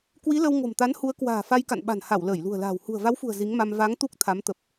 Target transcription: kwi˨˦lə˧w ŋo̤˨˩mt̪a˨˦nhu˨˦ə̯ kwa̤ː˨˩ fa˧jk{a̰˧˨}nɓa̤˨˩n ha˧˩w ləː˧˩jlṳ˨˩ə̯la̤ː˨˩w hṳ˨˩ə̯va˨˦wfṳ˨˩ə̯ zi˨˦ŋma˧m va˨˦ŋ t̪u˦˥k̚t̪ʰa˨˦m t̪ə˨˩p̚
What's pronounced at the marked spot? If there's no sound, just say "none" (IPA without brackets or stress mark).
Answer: a̰˧˨